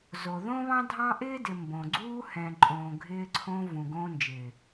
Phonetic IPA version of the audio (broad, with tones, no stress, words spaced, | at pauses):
zo˨ðõ˦βɑ̃˦dʱɑ̃˦ ʔɪː˦dɪ˨ mbõ˨ɡ͡ǀuː˦ hɛ̃˨ǃʼõː˨ ɡʱɪː˧ǀʰõ˧ vũ˨ ɡõː˧nd͡ʒɪː˨